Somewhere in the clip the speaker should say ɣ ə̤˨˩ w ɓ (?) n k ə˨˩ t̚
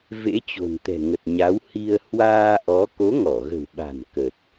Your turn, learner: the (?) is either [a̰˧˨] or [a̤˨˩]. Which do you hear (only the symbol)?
a̤˨˩